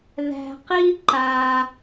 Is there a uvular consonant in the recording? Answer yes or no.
yes